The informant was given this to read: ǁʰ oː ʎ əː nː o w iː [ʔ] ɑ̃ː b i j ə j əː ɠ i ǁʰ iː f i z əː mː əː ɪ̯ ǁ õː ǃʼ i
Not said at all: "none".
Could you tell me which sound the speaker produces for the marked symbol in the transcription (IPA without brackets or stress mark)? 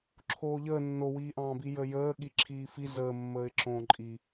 ʔ